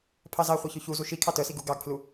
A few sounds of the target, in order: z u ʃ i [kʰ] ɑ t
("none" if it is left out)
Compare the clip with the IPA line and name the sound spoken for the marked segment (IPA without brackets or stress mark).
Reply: kʰ